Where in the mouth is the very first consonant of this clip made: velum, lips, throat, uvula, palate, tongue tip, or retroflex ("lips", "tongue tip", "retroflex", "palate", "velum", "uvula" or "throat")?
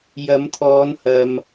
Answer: palate